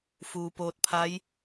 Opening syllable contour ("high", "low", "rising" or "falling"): low